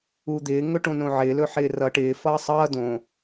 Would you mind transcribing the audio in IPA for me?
ud̪ɪː ŋɵʈõnõʕɪː lɵħɪːrʌ ʈɪː fʌːsˤʌː dõ

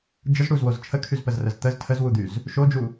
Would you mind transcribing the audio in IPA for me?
d͡ʒəz ɽuzwoz t͡ʃʰəkʰyzpəzrəz t̪əz tʰəzwud̪yz | ʃod͡ʒu

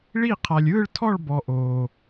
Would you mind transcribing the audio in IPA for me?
ɭi˥˧ qʰa˧lʲɯː˥˧ɭtʰɔ˥˧ɭbɔ˧ ʔoː˧

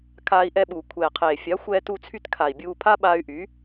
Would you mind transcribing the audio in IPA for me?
kʰaː˧i̯ʔɛ˧ɓuː˨ kʷʰɛː˨qʰeː˨ fʲa˨˦xʷɛː˧tu˧t͡sʰy˧t kʰa˨i̯bʲuː˧ pʰa˦ɓaː˧y̯ʔyː˨˦

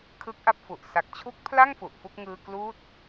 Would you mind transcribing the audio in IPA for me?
kʰɯ˦˥k̚ʔa˥˩p̚fu˨˩ʔ sa˨˩k̚t͡ɕʰu˦˥k̚pʰla˥˩ŋ fu˨˩ʔfu˥˩k̚ ŋɯː˧ kluː˦˥t̚

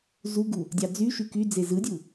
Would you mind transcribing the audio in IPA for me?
zuɡu | dʲɑd͡zyʃy kyd͡ze zɯdʲu

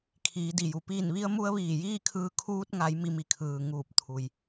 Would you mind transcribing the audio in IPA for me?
kʰiː˩˧di˩ju˩ piː˧˩nʋi˧ə̯mu˧ə̯ ʋiː˧˩jiː˥˨kʰɯː˧ kʰuː˧t̚ŋa˩˧j mi˧mi˧˩kʰɯː˩ ŋuː˧˩p̚ t̪ʰu˩j

